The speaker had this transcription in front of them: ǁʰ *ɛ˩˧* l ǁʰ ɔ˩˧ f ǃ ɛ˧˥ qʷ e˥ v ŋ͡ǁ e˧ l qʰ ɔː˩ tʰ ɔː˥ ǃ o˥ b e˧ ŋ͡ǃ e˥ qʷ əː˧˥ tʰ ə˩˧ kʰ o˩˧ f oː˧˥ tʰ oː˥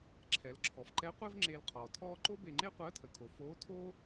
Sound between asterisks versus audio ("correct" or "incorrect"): correct